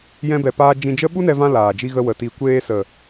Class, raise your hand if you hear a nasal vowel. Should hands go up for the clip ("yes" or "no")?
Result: yes